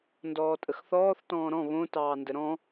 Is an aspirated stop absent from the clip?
yes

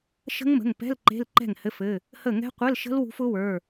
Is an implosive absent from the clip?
yes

